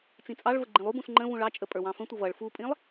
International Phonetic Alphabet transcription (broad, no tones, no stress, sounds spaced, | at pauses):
t͡s ĩ t͡sʼ ɑ ɭ v ə ɡ͡ǃ ĩ lˠ u b ũ s ŋ͡ǃ ə̃ v ũ ɭ ɑ t͡ʃʼ ə pʼ ə˞ w ɑ̃ f ə̃ tʷ ʌ v ʌ ɭ f u pʼ ĩ lˠ